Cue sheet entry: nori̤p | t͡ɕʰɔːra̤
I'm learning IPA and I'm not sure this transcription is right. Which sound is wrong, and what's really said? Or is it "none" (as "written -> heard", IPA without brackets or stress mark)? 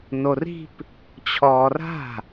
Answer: none